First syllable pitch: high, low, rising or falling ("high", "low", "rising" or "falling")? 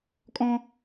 high